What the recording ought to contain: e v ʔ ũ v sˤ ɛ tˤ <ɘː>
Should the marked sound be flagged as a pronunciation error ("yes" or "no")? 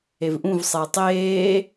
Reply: yes